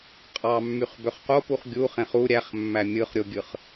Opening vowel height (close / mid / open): open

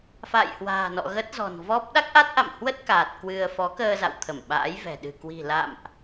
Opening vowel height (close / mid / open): open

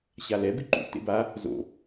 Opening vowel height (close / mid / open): open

